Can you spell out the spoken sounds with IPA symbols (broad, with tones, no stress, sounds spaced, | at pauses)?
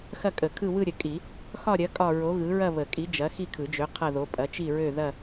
x ɐ˥˧ kʼ ə˨˩˦ kʰ ɯ˥˧ w ɯ˥˧ ɾʲ ə˨˩˦ kʼ i˨˩˦ | x ɒ˥˧ ɾʲ ɐ˨˥ kʼ ɒ˥˧ ɹ o˨˥ ɣ ɯ˨˥ ɹ ɐ˥˧ β ə˨˩˦ kʼ i˨˥ d͡ʒ ɐ˨˥ x i˥˧ kʰ ɯ˨˩˦ d͡ʒ ø˨˥ qʰ ɐ˥˧ ð o˨˥ pʼ ɐ˨˥ t͡ʃ i˥˧ ɹ ø˥˧ ð ɐ˥˧